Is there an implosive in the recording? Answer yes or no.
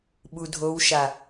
yes